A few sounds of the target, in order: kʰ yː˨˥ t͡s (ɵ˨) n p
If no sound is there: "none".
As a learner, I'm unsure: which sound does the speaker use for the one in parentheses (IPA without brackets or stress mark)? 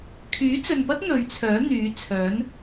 ɵ˨